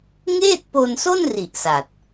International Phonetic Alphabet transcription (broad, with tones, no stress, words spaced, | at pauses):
ŋeː˥˩t̚po˧nso˥˩nri˨˩ʔ sa˨˩t̚